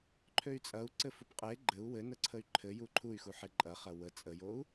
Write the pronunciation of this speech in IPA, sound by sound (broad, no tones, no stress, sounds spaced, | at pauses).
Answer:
ǃʰ ø y̯ t͡sʼ ɐ u̯ ǀ ɘ f u p qʼ e ɡ͡ǃ ɘ u̯ w ɘ n ə ǀʰ ə y̯ ǃʰ ɘ j u ǃʰ u y̯ x u ħ e ǃʼ ɐ χ ɐ w ə t͡sʼ ə j o u̯